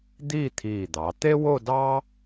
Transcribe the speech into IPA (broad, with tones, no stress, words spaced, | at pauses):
d̪iː˥˧t̪ʰiː˧˩d̪ɑ˩˧ t̪e˥wo˥˧dɑ˥